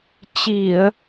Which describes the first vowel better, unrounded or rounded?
unrounded